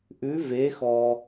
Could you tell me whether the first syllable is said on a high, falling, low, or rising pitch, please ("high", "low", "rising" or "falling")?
rising